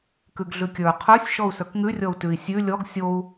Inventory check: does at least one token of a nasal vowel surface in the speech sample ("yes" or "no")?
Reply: no